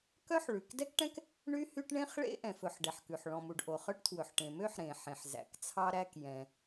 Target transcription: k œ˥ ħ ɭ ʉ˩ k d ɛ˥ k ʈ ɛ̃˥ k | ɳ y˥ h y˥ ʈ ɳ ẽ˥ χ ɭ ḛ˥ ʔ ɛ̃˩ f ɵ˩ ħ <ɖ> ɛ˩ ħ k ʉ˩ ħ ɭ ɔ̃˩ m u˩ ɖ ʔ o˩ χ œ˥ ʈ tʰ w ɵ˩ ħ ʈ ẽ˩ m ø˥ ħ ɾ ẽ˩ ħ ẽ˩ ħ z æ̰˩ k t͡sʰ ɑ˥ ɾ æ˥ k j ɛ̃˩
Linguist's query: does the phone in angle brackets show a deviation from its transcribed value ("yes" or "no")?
no